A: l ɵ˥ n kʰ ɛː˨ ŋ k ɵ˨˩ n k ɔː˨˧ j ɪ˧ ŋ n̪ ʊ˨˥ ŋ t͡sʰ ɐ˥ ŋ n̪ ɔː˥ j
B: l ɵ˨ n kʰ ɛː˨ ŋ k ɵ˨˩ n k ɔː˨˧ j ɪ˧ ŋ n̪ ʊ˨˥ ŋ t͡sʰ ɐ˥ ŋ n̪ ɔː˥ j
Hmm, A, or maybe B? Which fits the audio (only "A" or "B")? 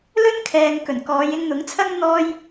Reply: A